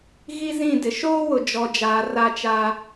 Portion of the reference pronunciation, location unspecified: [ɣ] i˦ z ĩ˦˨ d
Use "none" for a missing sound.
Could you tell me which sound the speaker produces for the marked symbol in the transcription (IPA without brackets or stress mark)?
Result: ɣ